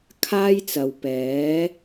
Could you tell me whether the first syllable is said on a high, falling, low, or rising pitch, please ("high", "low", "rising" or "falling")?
high